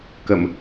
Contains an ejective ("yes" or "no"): no